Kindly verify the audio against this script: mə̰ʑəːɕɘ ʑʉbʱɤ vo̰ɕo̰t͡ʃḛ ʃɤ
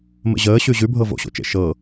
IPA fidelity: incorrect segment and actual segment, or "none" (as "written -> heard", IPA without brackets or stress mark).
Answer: ɘ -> ʉ